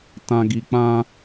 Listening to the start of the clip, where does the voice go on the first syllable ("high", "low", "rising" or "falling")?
low